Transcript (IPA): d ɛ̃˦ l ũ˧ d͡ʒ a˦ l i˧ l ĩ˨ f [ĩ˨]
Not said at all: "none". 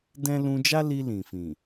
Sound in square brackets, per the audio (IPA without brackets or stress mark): ĩ˨